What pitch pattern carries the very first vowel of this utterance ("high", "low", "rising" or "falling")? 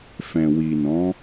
low